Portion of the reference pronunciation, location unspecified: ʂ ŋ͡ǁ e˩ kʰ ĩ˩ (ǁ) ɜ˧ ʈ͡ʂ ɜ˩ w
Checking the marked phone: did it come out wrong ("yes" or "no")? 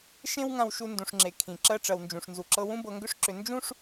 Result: no